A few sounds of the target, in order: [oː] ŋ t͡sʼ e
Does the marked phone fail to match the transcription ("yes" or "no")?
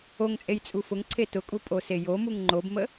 yes